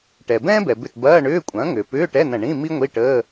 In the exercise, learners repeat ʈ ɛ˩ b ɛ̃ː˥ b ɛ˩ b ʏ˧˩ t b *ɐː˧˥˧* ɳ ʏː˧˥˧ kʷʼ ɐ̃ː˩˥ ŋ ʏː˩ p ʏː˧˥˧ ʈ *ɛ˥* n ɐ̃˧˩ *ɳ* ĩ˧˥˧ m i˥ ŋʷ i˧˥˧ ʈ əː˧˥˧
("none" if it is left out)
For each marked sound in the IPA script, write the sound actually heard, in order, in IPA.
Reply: ɐː˧˥˧, ɛ˧˥˧, ɳ

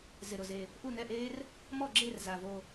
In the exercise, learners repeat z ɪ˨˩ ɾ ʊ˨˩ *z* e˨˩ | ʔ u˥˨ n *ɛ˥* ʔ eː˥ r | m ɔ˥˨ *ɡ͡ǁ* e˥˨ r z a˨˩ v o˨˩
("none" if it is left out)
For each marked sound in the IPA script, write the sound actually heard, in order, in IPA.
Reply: z, ɛ˥˨, ɡ͡ǁ

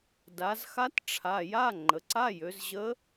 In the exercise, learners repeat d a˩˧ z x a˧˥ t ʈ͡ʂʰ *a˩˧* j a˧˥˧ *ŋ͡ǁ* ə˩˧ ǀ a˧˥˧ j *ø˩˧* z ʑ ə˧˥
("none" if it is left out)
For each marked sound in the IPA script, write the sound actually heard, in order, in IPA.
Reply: a˩˧˩, ŋ͡ǃ, ø˩˧

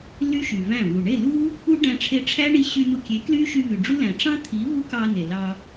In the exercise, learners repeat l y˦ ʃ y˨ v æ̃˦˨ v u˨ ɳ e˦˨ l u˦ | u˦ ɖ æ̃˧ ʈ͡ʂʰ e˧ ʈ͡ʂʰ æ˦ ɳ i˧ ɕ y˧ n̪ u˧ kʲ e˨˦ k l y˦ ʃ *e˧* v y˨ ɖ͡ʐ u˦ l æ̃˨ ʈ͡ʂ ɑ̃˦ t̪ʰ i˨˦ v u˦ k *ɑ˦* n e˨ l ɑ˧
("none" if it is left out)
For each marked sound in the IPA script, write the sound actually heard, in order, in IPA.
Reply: y˧, ɑ˧

